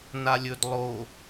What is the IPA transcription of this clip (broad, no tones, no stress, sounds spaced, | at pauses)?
n a lʲ ɵ d lˠ o